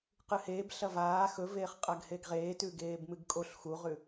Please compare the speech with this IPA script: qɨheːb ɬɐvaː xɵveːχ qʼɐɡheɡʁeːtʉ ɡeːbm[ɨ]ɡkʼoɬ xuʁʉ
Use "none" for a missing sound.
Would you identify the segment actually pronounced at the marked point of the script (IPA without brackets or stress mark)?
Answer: ɨ